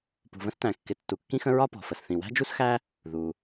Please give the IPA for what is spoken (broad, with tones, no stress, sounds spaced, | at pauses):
p ṳ˩ v ə̃˥ s t æ̃˩ kː ɪ˩ tː u˩ kː ĩ˥ x ə̃˥ ɹ ɒ˥ p ɔ̤˩ f ə˩ s θ ĩ˩ w æ̤˥ d͡ʒ u˥ s x æ˥ | ð u˩